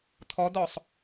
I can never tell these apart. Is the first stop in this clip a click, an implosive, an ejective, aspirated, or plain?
aspirated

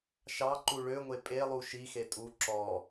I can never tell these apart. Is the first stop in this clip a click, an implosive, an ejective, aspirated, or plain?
click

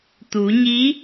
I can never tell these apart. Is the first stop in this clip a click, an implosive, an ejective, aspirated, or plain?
plain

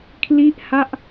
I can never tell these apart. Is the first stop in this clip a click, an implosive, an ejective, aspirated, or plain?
aspirated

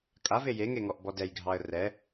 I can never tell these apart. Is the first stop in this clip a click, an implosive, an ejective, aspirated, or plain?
ejective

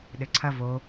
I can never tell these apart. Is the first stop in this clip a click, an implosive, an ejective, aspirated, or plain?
implosive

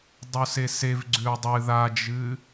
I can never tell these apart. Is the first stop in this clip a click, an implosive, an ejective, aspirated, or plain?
plain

